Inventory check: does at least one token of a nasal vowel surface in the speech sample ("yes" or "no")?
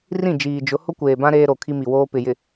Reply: yes